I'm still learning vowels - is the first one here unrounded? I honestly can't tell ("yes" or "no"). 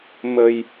yes